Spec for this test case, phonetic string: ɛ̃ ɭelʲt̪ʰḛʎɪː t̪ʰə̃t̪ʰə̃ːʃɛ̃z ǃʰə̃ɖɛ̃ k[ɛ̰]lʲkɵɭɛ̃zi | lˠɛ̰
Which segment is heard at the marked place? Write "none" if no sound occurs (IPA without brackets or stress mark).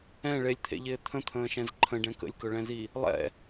ə̰